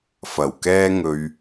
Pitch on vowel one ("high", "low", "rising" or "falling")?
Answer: low